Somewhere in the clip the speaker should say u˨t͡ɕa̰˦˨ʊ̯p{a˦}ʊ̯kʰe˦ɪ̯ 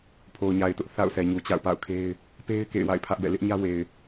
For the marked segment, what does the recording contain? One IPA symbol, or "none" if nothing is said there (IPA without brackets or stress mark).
a̰˦˨